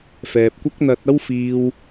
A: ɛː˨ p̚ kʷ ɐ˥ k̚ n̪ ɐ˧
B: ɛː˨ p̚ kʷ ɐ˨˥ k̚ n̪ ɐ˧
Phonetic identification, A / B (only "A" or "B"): A